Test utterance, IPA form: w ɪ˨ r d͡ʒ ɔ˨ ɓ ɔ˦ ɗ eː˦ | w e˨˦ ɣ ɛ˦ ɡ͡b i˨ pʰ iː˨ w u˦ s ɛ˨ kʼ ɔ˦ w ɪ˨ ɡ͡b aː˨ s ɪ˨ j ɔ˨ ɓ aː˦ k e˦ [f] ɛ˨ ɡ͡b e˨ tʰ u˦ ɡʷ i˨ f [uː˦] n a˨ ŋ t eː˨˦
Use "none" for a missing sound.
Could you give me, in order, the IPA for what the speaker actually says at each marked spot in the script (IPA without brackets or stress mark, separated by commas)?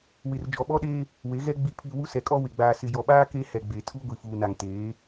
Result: h, uː˨